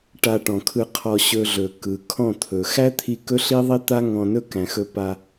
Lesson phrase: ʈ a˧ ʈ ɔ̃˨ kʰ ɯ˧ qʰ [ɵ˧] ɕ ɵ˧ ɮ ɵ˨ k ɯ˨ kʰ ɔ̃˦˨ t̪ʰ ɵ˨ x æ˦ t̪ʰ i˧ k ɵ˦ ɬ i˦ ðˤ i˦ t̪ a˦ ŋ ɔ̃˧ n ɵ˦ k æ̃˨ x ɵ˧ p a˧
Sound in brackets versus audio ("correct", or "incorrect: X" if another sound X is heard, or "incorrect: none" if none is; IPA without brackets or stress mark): incorrect: ɔ˧